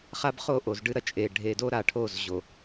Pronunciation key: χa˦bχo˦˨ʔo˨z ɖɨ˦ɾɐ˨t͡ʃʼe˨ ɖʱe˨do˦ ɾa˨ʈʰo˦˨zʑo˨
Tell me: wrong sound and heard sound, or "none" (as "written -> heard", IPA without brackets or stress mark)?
none